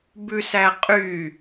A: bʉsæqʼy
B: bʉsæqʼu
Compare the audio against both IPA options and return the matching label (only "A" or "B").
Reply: A